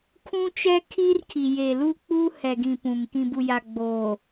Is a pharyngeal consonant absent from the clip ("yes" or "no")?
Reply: yes